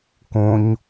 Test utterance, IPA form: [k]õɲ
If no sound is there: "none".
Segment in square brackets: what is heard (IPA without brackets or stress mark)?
k